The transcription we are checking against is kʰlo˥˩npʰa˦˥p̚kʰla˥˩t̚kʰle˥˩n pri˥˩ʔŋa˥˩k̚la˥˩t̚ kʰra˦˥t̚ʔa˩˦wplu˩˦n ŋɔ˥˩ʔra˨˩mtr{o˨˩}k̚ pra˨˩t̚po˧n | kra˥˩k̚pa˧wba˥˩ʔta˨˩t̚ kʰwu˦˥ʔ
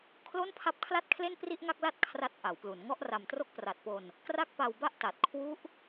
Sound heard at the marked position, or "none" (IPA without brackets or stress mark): o˥˩